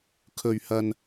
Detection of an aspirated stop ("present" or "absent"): present